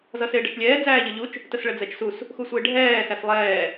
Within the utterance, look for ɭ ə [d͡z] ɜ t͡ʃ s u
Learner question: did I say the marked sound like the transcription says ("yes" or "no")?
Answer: yes